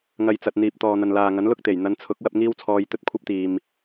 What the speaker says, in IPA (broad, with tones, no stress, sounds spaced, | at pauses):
ŋ ɐ˨ j t͡s ɐ˨ t̚ n̪ iː˨ p̚ t̪ ɔː˨ n̪ ɐ˨ n l aː˨ ŋ ɐ˨˥ n l ʊ˥ k̚ t̪ e˨˩ j n̪ ɐ˨˧ n t͡sʰ ʊ˨˥ k̚ w ɐ˧ p̚ ŋ iː˥ w t͡sʰ ɔː˧ j t̪ ɵ˧ t̚ kʷʰ ɐ˥ p̚ t̪ iː˨ m